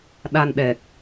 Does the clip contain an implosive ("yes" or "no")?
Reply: yes